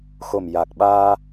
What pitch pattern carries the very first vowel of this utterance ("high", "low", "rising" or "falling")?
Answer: low